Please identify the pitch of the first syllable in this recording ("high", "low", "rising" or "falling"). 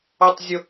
high